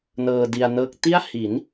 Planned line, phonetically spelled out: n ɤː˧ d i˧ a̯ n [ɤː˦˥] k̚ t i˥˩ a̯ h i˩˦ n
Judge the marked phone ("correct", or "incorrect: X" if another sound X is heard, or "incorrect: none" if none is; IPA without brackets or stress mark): correct